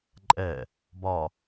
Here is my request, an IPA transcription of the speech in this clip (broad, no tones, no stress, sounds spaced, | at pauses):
ǃʼ ɛ | b ɒ